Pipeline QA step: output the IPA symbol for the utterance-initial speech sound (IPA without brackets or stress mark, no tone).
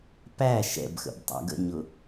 p